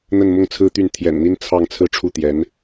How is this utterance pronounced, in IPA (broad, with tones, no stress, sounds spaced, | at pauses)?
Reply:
n̪ ə˥˧ n m ʊ˥˩ ŋ t͡sʰ ɹ̩˥ t̪ y˥˩ n t̪ʰ j ɛ̰˨˩ n n̪ i˥ n t͡sʰ ɑ˥˧ ŋ t͡sʰ ɹ̩˥˧ ʈ͡ʂʰ u˥˩ t̪ j ɛ˧˥ n